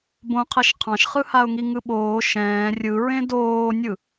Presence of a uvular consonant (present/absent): present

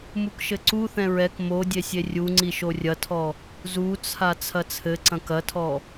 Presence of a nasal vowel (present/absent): present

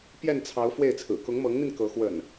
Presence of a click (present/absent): absent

